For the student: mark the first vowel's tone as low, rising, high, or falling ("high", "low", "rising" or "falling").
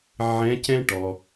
rising